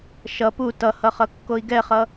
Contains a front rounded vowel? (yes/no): no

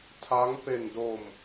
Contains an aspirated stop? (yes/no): yes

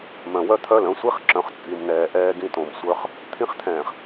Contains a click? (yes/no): yes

